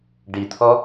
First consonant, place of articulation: retroflex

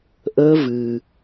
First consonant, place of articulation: glottal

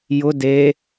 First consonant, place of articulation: palatal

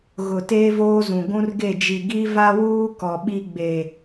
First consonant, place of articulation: velar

